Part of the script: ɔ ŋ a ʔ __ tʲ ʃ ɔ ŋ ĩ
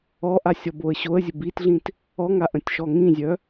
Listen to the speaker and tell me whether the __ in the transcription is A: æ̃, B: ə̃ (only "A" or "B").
B